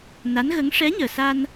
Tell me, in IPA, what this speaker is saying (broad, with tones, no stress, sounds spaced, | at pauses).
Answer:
n a˧˥ n ɣ ə˧˥ ŋ ʂ ɛ˧˥ ɲ əː˨˩ s a˧ n